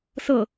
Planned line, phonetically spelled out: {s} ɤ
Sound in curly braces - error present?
no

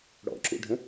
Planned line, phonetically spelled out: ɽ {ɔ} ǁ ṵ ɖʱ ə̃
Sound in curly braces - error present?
yes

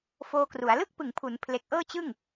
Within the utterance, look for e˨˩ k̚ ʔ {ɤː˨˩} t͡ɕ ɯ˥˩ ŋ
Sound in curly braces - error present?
yes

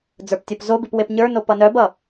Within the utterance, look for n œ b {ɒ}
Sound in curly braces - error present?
yes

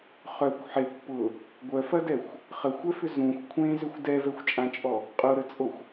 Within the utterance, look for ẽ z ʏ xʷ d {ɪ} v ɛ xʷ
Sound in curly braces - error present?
yes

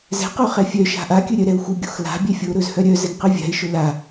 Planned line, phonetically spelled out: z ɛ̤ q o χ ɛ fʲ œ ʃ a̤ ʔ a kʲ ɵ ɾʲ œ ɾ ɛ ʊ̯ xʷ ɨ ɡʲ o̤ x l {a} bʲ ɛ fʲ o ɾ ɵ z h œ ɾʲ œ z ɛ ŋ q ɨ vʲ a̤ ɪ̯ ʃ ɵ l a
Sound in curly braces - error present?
yes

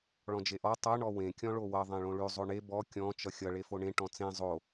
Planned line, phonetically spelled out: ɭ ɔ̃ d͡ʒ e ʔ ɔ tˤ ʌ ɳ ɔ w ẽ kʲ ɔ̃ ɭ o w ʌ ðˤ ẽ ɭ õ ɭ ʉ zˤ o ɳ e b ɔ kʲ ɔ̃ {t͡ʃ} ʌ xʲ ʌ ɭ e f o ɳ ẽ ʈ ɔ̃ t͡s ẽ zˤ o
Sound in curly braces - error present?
no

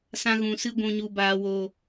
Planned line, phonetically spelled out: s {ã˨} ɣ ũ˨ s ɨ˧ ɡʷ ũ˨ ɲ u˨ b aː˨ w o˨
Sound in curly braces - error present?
yes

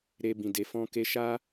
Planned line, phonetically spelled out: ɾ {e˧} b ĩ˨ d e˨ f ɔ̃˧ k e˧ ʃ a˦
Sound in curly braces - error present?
no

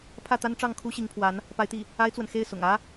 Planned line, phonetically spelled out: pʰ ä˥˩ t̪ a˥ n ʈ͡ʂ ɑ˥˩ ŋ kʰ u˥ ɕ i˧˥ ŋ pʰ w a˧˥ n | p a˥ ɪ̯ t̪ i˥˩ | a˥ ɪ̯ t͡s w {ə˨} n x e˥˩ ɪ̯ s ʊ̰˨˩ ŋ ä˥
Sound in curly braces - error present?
no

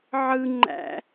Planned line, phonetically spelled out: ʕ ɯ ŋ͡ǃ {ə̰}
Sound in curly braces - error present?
yes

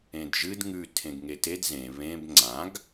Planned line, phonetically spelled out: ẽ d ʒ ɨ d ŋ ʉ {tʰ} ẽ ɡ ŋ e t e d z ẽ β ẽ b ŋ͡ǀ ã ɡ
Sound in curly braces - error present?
no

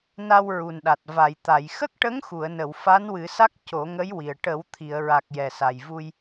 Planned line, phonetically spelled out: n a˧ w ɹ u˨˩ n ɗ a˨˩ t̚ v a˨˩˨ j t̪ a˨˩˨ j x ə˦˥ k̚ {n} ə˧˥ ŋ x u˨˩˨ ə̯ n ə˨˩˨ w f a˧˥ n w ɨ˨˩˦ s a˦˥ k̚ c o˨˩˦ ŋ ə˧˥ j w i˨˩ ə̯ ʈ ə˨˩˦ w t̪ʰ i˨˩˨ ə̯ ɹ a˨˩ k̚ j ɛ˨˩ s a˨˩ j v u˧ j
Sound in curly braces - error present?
yes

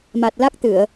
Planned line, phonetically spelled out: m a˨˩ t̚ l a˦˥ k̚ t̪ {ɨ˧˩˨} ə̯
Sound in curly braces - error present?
no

